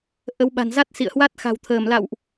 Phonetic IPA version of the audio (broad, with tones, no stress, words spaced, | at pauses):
ʔə˨˦wɓa̤˨˩n za˦˥t̚sḭ˧˨ə̯hwa˦˥t̚ xa̤˨˩wt̪ʰəː˧˩mla̰˧˨wʔ